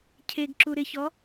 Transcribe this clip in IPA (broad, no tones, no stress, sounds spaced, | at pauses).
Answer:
cʰ e ɡ ǁ u ɾ ɪ ç ɔ